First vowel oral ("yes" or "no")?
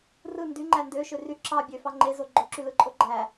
yes